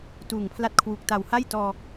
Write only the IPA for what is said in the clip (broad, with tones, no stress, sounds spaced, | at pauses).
t uː˨˩ ŋ pʰ l a˦˥ t̚ kʰ w uː˨˩ k̚ t a˨˩ w h a˥˩ j t ɔː˧